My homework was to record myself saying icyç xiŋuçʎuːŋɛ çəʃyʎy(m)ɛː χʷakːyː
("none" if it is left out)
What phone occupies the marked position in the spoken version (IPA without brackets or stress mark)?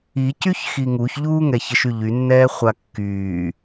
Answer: nː